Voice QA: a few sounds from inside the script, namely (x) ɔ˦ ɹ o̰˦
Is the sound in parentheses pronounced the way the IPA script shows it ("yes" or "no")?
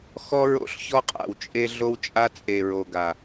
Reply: yes